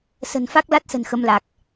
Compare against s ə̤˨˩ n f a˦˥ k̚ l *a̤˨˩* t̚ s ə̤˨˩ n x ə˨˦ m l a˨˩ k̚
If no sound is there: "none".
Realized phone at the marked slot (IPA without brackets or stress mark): a˦˥